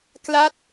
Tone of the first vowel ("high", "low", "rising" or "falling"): falling